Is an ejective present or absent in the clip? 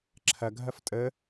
present